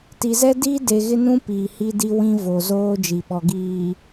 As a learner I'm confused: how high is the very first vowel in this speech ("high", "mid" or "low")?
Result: high